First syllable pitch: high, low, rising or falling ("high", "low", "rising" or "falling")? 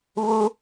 high